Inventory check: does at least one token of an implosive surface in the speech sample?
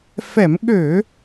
yes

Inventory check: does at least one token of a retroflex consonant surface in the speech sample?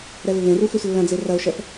no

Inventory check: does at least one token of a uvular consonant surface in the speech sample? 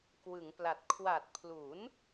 no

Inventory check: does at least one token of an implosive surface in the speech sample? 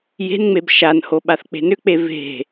yes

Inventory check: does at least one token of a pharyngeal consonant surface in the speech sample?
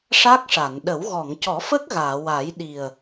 no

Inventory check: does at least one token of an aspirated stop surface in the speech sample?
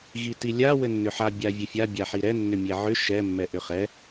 no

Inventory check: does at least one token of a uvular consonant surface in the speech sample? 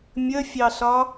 no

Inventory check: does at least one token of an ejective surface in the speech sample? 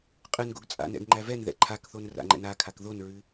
yes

